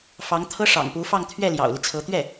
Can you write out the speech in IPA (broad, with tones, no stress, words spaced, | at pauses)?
fɑ˧˥ŋt̪ʰɤ˥ ʂɑ̰˨˩ŋpu˧˥fɑ˥˧ŋ t̪ʰɥɛ˥˩ljɑ̰˨˩ʊ̯li˦t͡sʰɤ˧˥ t̪ɥɛ˥˩